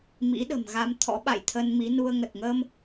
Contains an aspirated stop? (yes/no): yes